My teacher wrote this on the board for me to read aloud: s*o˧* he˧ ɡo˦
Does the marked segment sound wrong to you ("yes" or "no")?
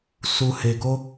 yes